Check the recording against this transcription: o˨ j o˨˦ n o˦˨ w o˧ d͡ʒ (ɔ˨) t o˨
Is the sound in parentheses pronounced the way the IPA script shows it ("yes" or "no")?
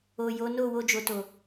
no